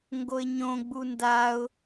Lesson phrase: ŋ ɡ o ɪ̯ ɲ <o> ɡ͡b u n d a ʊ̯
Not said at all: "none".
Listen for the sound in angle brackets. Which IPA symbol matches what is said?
õ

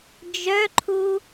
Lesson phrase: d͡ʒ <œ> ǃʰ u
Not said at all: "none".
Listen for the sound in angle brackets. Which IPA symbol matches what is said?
œ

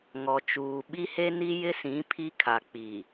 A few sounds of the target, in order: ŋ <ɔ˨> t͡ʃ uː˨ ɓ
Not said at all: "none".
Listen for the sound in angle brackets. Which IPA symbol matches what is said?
ɔ˨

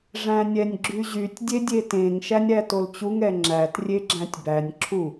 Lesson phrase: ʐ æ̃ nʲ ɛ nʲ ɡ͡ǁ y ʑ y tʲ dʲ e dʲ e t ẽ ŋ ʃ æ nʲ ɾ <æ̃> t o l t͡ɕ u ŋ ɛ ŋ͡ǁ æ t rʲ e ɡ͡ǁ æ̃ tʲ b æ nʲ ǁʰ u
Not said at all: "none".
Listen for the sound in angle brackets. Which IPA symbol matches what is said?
æ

